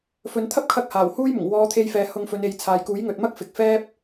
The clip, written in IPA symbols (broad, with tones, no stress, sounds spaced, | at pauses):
f ɵ˨ n t̪ʰ ɐ˥ p̚ kʰ ɐ˧ k̚ h aː˨˩ w h uː˥ j m ʊ˨˩ ŋ w ɔː˨˧ t̪ʰ e˧ j f ɛː˨ h ʊ˧ ŋ f ɵ˨˧ n e˨˧ j t͡sʰ aː˨ j k uː˨˥ j ŋ ɵ˨ t̚ m ɐ˥ k̚ f ɪ˨ k̚ f ɛː˥ p̚